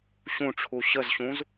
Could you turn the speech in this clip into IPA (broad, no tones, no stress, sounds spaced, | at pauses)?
ɕ ũ ʈ͡ʂʰ u ɕ ə z ɕ ũ z